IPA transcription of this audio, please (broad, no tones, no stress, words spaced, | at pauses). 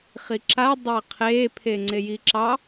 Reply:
χiǁa dˤaqʰeː pʰeŋ͡ǀejiǁɑ